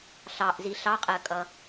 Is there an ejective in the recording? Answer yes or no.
yes